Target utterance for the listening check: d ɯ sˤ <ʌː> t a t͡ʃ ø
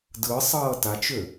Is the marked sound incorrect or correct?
correct